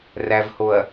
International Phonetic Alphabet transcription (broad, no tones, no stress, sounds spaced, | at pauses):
r æ v h o ɐ̯